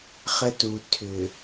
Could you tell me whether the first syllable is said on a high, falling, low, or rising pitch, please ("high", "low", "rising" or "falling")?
high